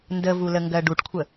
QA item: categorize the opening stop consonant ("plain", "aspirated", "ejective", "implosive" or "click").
plain